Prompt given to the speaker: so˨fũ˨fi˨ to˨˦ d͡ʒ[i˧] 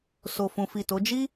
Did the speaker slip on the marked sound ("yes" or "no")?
yes